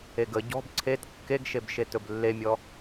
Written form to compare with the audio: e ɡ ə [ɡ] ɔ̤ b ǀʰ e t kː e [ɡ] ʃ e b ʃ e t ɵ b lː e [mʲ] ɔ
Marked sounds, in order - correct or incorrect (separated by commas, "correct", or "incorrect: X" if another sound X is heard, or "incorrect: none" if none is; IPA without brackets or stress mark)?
incorrect: ɟ, correct, correct